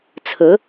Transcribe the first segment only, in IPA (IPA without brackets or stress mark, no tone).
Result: t͡sʰ